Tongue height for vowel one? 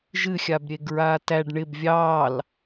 high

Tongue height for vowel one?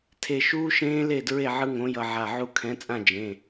mid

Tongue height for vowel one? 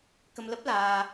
mid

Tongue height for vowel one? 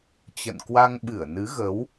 mid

